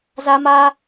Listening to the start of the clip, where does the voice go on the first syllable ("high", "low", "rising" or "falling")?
high